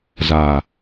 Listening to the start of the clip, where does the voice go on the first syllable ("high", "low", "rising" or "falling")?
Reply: low